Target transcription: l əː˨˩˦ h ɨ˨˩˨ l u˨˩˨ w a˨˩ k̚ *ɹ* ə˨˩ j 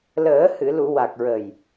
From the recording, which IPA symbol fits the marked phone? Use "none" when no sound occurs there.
ɹ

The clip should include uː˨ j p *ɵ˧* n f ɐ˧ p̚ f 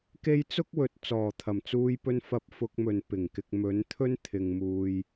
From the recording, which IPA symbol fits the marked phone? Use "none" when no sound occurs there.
ɵ˨˧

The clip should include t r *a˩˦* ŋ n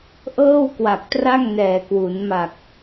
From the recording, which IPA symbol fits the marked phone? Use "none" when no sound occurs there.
a˥˩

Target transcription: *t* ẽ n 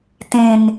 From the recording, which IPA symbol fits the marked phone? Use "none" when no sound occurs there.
t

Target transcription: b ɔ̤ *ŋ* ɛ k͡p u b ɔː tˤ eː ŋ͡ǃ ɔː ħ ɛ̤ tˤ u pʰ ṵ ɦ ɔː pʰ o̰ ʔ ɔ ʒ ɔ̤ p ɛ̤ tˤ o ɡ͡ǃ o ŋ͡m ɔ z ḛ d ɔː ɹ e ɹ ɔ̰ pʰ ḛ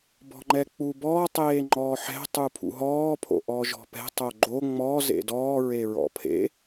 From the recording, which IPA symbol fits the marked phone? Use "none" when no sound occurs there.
ŋ͡ǃ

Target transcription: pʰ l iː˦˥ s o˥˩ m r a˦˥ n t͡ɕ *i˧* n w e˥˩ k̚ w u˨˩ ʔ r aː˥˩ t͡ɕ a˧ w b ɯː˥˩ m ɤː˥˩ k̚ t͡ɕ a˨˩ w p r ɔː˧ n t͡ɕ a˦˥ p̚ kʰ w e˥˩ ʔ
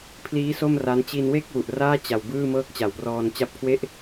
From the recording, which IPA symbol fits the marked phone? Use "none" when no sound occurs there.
i˧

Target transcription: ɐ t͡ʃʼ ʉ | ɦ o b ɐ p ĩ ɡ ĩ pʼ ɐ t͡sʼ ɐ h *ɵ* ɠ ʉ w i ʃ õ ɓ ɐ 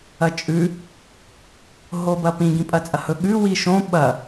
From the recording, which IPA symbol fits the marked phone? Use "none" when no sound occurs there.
ɵ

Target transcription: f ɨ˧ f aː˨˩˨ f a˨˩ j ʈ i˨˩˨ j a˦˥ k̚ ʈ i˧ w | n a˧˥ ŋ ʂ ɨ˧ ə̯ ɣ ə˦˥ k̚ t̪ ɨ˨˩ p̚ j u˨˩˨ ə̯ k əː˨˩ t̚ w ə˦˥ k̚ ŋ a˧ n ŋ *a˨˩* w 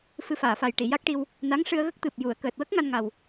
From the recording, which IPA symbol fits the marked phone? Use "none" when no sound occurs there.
a˨˩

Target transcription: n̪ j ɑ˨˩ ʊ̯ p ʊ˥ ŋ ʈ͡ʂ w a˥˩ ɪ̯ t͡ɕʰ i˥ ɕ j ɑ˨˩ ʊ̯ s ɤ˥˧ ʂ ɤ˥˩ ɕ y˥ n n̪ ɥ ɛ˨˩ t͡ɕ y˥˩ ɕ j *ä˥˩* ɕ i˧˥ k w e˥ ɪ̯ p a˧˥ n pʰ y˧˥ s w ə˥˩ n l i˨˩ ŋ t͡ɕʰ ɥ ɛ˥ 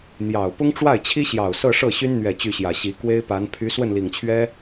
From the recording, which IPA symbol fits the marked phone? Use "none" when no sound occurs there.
ä˨˩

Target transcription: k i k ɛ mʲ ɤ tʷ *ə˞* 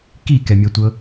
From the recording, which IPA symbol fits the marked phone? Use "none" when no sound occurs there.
ɤ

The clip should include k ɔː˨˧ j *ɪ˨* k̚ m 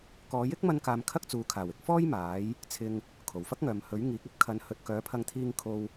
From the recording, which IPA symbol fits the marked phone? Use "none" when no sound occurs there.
ɪ˥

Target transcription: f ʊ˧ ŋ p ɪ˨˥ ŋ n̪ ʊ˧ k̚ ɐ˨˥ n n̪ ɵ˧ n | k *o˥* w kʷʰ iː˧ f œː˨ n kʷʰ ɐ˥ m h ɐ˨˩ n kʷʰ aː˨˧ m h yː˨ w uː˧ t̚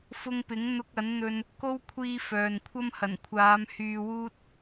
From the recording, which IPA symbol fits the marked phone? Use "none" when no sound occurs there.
o˥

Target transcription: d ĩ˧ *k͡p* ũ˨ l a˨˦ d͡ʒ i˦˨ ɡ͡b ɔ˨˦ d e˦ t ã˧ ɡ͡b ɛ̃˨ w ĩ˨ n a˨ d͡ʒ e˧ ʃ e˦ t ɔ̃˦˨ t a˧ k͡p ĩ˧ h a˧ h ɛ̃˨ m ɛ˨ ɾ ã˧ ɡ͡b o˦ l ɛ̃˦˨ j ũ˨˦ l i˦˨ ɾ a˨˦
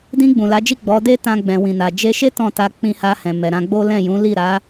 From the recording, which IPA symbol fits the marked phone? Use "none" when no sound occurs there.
ɡ͡b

